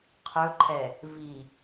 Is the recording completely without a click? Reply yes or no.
no